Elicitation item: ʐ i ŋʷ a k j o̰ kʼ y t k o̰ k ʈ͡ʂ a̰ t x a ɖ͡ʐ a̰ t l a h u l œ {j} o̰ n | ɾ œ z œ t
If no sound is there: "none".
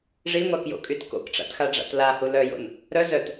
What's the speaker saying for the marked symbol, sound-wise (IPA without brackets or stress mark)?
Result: j